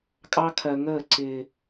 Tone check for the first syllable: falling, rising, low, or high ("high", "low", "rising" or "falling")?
high